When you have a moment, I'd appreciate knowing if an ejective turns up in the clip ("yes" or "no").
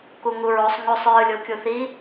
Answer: no